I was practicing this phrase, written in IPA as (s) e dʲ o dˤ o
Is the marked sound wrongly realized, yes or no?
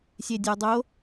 yes